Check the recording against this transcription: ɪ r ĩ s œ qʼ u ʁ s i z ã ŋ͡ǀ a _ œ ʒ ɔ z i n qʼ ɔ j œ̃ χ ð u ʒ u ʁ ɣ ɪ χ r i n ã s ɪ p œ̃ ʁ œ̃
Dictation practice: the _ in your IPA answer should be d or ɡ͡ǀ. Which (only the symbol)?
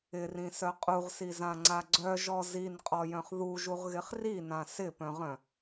ɡ͡ǀ